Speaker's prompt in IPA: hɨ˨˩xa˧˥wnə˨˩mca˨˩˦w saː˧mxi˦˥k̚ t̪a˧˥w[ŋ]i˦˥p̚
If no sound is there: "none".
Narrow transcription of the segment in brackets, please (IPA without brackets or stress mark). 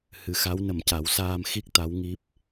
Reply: ŋ